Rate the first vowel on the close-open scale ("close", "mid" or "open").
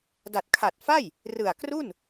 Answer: open